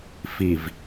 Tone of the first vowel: low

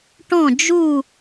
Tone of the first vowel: falling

